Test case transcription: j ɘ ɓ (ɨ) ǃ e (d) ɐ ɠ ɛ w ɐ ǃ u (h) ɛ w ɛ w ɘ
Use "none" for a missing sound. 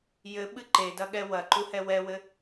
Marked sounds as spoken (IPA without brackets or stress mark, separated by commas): ɨ, d, h